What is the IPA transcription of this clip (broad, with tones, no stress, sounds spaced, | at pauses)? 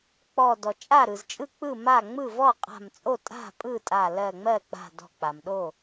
k͡p ɔ˧˩ d ɔ˩ t͡ʃʼ a˥˩ ɾ ɯ˩ z t͡ʃʼ ɯ˥˩ k͡p ɯ˥˩ m a˥˩ ŋ͡m ɯ˥˩ v ɔ˥˩ qʼ a̤˧˩ m t͡sʼ o˥˩ tʼ a̤˥˩ pʼ ɯ˥˩ tʼ a˧˩ l ɜ˧˩ ŋ͡m ɜ˥˩ k͡p a̤˧˩ d ɔ̤˧˩ k͡p a˩ m ɗ o˥˩